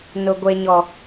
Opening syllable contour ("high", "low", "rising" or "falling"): high